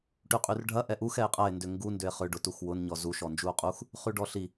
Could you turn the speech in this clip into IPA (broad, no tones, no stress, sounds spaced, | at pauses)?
ʈ y qʼ y r ɖʱ ɐ ʔ ɛ ʔ u x ɛ e̯ qʼ ɐ e̯ n d ʏ ŋ ɡ u n d ʏ e̯ χ ʏ ɖ ʊ t u x w ʊ n ɲ ɔ z u ʃ ɔ n d͡ʒ u o̯ qʼ u x | χ y ɖ ɔ ɬ i